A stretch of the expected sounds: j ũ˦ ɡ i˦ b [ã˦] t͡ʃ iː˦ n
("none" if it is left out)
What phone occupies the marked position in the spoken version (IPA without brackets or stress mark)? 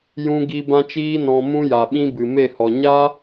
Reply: ã˦